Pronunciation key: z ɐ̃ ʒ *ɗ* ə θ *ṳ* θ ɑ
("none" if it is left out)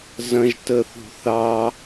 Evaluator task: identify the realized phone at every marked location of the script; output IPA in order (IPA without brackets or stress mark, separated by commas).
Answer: t, ṳ